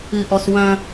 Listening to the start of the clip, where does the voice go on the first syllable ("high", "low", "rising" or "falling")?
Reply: high